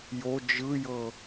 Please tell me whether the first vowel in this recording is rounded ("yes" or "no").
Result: yes